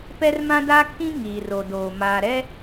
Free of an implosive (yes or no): yes